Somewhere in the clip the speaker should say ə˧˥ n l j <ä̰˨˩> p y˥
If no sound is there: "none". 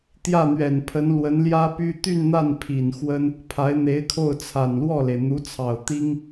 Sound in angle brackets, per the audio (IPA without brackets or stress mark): ä˥